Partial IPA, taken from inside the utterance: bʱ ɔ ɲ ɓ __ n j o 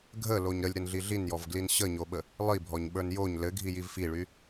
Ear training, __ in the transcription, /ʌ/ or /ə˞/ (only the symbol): ə˞